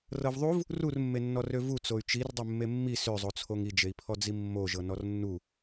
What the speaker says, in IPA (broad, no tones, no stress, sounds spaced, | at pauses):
r ɤ v ðˤ u v | r u r mː e nː ɔ r ø v u t͡s o y̯ t͡ʃ i r dˤ e mː e mː i s ø zˤ o t͡sʰ o ŋ i d͡ʒ e i̯ pʰ ɔ d͡z i mː o ʒ ɤ n ɔ r nː u